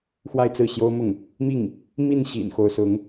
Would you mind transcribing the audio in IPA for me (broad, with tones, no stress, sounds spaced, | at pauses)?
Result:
x w a˥˧ ɪ̯ t͡s ɹ̩˥˩ ɕ j o˥ ʊ̯ m ʊ˥˩ ŋ | m i˥˩ ŋ | m i˥˩ n ɕ ḭ˨˩ n x o˧˥ ʊ̯ s ʊ˧˥ ŋ